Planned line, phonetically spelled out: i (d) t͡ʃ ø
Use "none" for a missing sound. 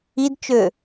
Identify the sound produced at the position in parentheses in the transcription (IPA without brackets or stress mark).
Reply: d